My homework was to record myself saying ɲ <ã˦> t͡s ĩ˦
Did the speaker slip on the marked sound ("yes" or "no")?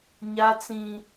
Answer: yes